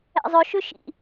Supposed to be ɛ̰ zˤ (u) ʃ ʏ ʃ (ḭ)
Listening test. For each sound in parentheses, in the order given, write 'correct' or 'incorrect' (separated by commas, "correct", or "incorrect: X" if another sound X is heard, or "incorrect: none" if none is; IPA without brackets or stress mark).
incorrect: ʏ, correct